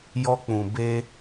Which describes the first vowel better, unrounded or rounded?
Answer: rounded